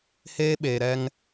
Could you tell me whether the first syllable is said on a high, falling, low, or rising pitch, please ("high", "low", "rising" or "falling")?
high